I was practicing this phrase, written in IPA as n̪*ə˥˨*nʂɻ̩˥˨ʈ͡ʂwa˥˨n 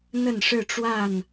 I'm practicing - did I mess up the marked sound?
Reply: no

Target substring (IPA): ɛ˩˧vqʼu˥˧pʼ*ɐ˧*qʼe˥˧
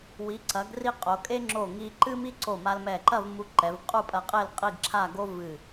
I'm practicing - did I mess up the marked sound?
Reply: no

